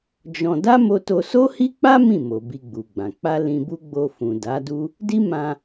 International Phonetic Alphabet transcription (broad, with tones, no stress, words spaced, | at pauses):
d͡ʒɔ̃˧ da˦mo˧to˧ so˦hi˦k͡pa˦ mĩ˦˨mo˨ bi˧ɡ͡bu˨ɡ͡bã˨ k͡pa˧ lĩ˧bu˦ ɡ͡bo˧fũ˨ da˨˦du˦ | di˦ mã˧